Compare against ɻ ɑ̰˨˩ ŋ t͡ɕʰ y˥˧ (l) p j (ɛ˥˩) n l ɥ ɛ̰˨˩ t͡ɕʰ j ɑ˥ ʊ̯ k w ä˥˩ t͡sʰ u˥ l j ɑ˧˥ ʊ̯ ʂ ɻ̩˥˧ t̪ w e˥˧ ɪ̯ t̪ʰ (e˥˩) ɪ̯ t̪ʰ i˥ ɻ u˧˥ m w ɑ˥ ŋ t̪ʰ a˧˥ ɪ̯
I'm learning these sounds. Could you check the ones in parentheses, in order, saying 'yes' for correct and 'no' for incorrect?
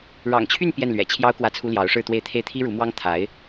no, yes, yes

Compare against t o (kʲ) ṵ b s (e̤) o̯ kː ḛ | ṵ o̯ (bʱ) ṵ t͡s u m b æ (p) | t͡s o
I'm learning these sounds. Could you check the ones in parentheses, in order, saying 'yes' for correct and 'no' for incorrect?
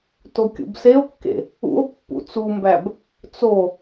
yes, no, no, no

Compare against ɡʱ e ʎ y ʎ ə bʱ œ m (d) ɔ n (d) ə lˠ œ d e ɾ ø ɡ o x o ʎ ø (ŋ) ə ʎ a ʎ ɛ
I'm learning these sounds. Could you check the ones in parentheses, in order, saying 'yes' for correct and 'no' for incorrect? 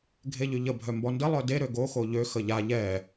no, yes, no

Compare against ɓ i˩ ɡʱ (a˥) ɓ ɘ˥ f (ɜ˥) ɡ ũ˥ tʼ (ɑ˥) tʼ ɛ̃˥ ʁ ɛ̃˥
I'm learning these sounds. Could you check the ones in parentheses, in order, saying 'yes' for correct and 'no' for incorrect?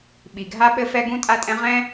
yes, no, no

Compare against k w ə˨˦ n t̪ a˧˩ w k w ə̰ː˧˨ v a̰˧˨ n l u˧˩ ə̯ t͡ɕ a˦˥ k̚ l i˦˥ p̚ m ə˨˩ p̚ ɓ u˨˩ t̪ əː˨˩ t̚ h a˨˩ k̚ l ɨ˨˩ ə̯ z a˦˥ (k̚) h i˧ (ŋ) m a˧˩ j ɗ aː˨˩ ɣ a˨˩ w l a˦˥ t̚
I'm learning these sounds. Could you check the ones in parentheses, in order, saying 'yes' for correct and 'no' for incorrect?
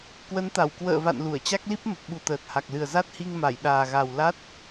no, yes

